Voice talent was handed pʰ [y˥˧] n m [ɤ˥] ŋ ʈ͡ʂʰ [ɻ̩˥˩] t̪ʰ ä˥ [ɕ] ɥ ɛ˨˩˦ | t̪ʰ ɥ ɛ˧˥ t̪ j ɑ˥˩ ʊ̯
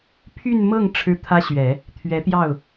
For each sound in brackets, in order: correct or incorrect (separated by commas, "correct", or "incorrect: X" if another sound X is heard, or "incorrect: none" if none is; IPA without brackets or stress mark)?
correct, incorrect: ɤ˥˩, incorrect: ɻ̩˥, correct